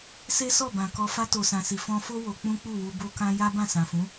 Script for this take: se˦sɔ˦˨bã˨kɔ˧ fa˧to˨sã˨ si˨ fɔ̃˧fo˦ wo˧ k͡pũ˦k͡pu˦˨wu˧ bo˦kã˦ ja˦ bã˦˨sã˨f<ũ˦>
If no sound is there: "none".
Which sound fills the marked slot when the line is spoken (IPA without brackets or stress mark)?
ũ˨˦